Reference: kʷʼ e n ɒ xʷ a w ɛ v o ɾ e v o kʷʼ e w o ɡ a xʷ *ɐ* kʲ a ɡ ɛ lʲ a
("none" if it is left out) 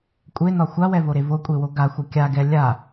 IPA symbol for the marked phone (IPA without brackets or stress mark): ɐ